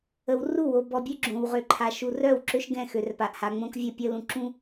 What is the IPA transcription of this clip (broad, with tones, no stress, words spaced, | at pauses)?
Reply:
ə˨wru˦˨wo˨ bɔ˨bʲø˦ ɡ͡ǁõ˨wʁø˨ǃʰa˨ ʃu˨rœ˦˨wǁø˦ʃ ɡɛ̃˦˨ xø˨rpa˨ʔha˨ ŋ͡mõ˦kvʲə˦˨pʲə˦ lũ˨ǁũ˦